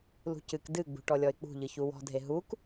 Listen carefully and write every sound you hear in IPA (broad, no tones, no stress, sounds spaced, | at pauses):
l ṳ c ɨ k d ɨ ɡ͡b ṳ ʈ ɔ lʲ ɔ ɪ̯ k͡p ṳ ʎ ɨ ç u w ɔ̤ dʱ e ɦ u k